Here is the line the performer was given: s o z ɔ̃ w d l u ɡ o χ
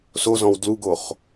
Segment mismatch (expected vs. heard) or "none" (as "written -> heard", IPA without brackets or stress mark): none